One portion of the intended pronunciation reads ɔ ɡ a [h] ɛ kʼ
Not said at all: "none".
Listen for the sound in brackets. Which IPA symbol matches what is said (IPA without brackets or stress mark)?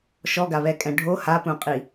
β